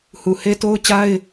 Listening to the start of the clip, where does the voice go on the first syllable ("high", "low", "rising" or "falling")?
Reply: low